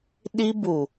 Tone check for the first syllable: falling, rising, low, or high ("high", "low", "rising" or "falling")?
high